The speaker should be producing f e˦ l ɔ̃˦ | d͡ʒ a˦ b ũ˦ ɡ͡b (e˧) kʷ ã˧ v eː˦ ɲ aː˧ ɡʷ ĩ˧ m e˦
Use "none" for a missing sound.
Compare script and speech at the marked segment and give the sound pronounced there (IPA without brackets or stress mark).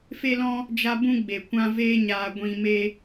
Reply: e˨